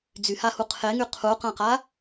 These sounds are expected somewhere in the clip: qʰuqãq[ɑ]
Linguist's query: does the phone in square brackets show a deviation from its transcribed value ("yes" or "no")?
yes